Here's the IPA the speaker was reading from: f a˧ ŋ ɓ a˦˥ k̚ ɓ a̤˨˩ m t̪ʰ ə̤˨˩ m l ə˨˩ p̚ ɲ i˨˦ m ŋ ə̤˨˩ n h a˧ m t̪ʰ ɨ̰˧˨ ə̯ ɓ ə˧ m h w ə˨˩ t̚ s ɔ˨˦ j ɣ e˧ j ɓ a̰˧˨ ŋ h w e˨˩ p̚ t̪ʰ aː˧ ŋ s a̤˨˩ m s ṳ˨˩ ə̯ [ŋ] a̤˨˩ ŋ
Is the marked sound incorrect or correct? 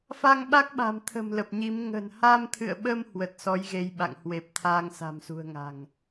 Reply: correct